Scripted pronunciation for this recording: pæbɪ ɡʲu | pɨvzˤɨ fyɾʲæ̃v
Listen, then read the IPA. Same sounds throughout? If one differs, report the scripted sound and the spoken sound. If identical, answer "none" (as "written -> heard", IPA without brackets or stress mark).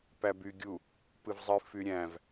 ɪ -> y